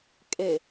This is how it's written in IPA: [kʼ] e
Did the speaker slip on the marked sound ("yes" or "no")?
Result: no